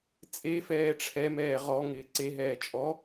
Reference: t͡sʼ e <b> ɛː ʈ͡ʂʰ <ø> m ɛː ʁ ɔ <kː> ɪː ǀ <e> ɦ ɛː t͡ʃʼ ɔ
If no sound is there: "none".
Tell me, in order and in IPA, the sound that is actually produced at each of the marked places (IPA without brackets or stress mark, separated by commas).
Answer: f, ɛ, ŋ, e